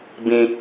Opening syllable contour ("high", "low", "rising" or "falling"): high